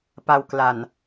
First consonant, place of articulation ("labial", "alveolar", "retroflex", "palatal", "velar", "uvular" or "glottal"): labial